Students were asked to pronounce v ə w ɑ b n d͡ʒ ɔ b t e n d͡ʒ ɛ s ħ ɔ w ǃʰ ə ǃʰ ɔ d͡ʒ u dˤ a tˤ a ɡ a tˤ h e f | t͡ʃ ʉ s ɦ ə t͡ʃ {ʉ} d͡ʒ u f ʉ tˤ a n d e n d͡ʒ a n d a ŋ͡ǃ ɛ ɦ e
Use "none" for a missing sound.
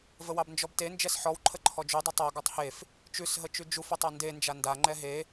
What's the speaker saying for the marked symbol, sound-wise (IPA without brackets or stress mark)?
ʉ